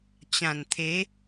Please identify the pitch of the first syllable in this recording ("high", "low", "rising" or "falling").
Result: low